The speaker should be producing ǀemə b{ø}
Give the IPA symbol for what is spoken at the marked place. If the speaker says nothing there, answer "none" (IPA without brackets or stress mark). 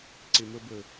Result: ə